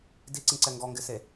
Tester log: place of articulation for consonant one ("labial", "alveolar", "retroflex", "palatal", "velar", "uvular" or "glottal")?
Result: alveolar